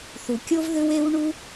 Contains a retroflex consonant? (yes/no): yes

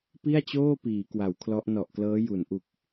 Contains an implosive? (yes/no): no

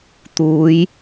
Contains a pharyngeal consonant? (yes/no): no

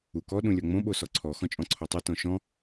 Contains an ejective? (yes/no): yes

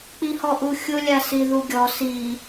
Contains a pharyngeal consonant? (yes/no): no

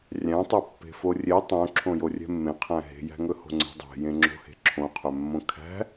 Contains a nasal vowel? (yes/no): yes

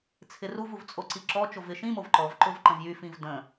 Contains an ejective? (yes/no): yes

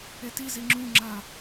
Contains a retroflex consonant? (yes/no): no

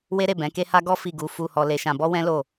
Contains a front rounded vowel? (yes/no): no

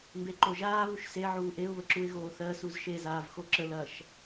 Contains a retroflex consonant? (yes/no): no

